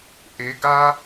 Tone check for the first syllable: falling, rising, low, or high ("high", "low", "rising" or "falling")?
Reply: rising